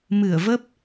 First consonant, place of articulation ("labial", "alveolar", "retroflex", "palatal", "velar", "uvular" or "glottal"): labial